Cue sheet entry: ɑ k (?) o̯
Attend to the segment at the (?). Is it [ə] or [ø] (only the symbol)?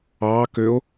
ø